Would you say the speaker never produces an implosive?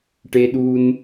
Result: no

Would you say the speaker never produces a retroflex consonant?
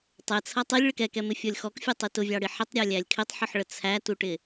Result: no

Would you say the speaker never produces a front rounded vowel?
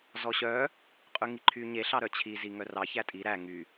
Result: no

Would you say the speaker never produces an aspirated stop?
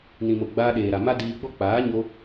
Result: yes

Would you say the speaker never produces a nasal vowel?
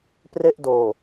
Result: yes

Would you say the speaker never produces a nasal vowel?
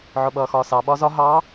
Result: yes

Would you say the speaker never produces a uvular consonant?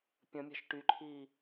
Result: yes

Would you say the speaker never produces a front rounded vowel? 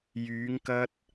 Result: no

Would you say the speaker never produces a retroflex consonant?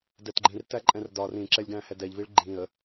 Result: no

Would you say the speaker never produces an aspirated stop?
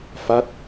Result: yes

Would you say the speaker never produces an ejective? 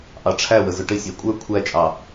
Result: no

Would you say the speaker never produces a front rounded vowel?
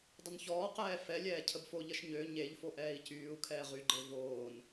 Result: no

